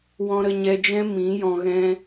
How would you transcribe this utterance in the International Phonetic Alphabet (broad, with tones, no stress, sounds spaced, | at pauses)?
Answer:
w ɔ̃˧ ɾ ə˧ ɲ ɛ˧ d͡ʒ ɛ̃˦ m ĩ˨˦ j ɔ̃˧ ɣ ɛ̃˦